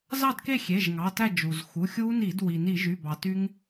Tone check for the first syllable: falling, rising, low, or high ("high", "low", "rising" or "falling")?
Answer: falling